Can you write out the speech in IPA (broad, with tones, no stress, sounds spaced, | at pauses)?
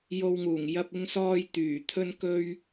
j o˧ w ŋ uː˨˩ ŋ j ɐ˧ p̚ ɪ˧ ŋ s ɔː˧ j t̪ yː˨˩ t̪ʰ ɵ˥ n k ɵ˥ ɥ